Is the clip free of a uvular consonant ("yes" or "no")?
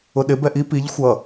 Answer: yes